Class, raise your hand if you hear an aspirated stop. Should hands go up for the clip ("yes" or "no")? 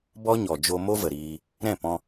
no